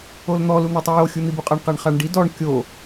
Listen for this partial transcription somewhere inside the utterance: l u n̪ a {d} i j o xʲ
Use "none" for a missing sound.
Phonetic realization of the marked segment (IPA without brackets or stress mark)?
tˤ